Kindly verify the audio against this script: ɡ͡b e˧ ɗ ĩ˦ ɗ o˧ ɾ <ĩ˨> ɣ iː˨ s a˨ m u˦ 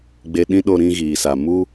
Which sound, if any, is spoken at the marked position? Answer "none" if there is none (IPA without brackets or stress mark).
ĩ˦